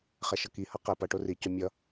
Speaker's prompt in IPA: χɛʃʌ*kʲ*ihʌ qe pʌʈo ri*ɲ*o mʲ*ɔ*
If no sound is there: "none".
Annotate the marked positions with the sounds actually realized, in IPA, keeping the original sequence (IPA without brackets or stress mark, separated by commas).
k, c, ʌ